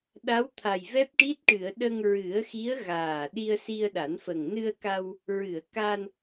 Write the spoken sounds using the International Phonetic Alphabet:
ɗa˧˥wt̪ʰa˨˩jvɛ˦˥p̚ʈi˦˥t̚ ʈɨ˨˩˨ə̯ ɗə˧ŋɹɨ˨˩˦ə̯xi˧˥ə̯ ɣaː˨˩ ɗi˧ə̯si˧ə̯ɗa˨˩˦nfə˨˩ŋ nɨ˧ə̯ka˧w | ɹɨ˨˩˨ə̯ka˧n

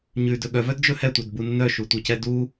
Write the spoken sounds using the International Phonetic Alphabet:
ɲʉdɵ ɠœvœdd͡ʒɵ hɛtʷœdbu nːœʃutʷɛcɛ du

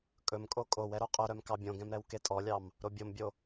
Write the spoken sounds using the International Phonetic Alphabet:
kʼɵmkʼo kʼow ɛɾoqʼɵɾœm kɑbʲõɡɛ̃m ɾɛwketʼɔlʲɑm | ɾobʲombʲo

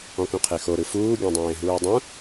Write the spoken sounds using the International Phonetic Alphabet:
ɔ̃kũqʰexo ɾɯfuː ɡʲõdˤẽːɦuːdˤũ

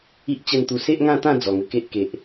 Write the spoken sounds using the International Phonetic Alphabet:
i˦ʔ t͡ɕə˥˧nt̪u˧ se˦ʔŋã˥˧t̪ã˥˧ d͡zɔ˨˩ŋə˧ke˦ʔ ke˨ʔ

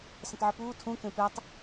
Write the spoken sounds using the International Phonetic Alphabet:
sə̃tˤʕupuː tʰũkẽ tʷatˤ

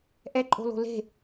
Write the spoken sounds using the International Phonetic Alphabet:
ʔɛǃʼo̤lo̤ le̤

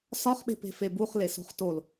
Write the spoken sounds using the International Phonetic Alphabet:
sɒχɓe̤pe̤ febuχleso̤χ tol

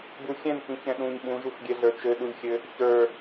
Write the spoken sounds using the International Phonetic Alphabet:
buxʲɛ̃nkĩ çɛ̃ɗũɲ ɓũʒuxɡʲɛɮə˞ t͡ʃɘɗulʲxʲɘ | çə˞

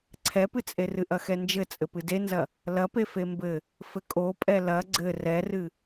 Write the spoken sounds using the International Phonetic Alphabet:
ǀʰɛpɨt͡sʼe rɨʔɐxɛnd͡ʒɘ t͡sʼɘpɨdenzɐ | lɐpe fembɘ | fɘkʼopʼɛ lɐ ɡ͡ǀɘ rɛrɨ

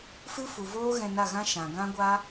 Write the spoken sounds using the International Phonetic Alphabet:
fɨ˦fu˨voː˦ ɣɛ̃˧na˦˨ɣã˦ ʃã˨ɡã˦ɡʷa˦

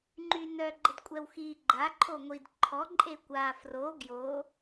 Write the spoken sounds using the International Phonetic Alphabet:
ŋ͡ǃynœ ɡ͡ǃədkʷʼɛwxi ɡ͡ǃa ǃʰoŋʷid ǃʰɔ ǃʼekʷa fro ɡjo

